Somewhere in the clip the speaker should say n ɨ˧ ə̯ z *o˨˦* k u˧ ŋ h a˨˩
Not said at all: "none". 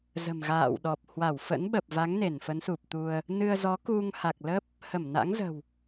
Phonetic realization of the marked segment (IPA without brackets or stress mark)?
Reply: ɔ˨˦